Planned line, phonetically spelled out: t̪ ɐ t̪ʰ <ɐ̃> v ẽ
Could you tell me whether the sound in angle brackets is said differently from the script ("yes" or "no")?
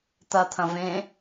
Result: no